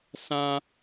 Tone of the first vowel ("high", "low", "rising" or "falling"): high